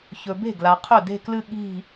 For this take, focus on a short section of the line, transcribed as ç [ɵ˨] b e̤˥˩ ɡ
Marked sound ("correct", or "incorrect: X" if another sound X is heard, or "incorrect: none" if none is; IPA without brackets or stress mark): correct